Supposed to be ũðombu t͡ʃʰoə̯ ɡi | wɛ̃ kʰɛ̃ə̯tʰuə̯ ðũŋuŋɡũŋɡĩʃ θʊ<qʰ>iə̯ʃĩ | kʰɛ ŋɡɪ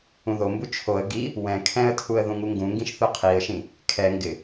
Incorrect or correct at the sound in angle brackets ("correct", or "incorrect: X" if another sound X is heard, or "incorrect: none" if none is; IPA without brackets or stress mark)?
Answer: correct